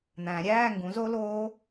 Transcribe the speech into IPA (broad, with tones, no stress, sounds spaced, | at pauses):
n̪ æ̃˨˩˦ ɾʲ æː˧˥˧ ŋ ɡ ũ˩˥ z o˦˥ l oː˦˥